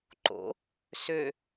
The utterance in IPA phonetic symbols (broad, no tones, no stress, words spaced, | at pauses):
ǃo̰ | sø